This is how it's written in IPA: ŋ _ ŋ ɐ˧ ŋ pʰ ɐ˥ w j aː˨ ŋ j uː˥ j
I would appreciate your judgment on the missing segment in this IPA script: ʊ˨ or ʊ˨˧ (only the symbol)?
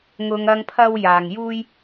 ʊ˨˧